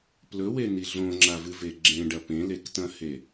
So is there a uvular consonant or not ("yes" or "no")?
no